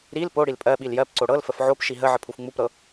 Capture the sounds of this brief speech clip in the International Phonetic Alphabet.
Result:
ɾil poɽil pʼɜɓil jɜpǀo ɽɤlfəf ʕopʃi ɦə ʕəpʰufŋ͡mupɾɤ

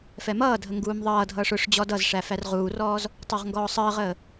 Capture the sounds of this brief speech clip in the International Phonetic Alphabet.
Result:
fɛmʌːdʱə ŋɡuːmðˤʌːdʱʌːʂ ʊʂ d͡ʑɔdʌzʂæ færʁuːrɔːz | tˤə˞ʁŋɡɔːsˤəːʁəː

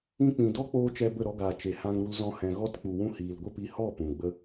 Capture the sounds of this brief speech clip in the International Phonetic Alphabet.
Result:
ĩ˧k͡pĩ˨dɔ˦k͡poː˧ t͡ʃɛ˧bə˦˨ɾɔ˧ɡaː˨ t͡ʃe˨hã˧ŋɾu˧l zɔ̃˧hɛ̃˨ ɣɔ˧tk͡pu˨wũ˧ hiː˨lɡʷə˦pi˧ hɔ˦˨ pũ˨ɡ͡bə˦

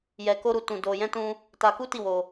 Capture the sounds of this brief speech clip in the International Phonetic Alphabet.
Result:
jɛ˧ko˦ɾu˧ tũ˧do˧jɛ̃˦tũ˦ | ta˧ku˦ti˦˨wo˧

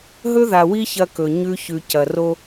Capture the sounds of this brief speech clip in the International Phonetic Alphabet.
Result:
ɦɵ˦ða˨wi˦ çɐ˦kɵ˨ ɲʉ˦çʉ˨ cɐ˨ ro˦

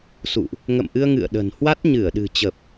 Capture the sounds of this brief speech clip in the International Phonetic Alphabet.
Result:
sṵ˧˨ʔ | ŋə̰˧˨mʔɨ˧ə̯ ŋɨ̰˧˨ə̯ɗə̤˨˩n hwa˦˥t̚ɲɨ˧˩ə̯ɗɨ̤˨˩ t͡ɕə˨˩p̚

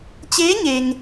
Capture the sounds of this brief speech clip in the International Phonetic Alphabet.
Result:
t͡ɕeː˧˥ ɲe˧ŋ

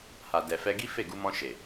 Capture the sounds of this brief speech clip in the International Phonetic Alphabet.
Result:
ha˨ dɛ˨fɛ˧ɡi˦ fe˦˨ ɡu˧mɔ̃˧ʃe˨

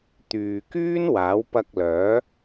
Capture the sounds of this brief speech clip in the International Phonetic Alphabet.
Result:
t̪yː˨kyː˥nwaː˨˥w pɐ˧k̚lœː˨˥

